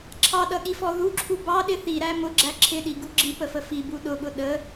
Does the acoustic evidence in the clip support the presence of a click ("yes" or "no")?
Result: yes